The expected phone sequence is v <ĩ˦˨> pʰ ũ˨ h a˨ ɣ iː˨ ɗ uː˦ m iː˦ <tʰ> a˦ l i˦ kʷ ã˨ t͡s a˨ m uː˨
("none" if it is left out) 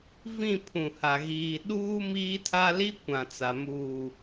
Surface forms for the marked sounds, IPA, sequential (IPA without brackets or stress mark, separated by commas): ĩ˦˨, tʰ